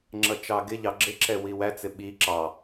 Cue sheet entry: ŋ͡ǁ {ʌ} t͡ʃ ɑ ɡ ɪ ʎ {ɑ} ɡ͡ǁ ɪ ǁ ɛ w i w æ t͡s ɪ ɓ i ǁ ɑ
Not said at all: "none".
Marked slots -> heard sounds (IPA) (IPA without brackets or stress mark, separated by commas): ʌ, ɑ